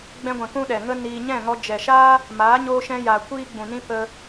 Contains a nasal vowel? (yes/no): yes